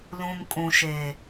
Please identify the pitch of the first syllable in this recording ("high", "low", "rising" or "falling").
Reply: low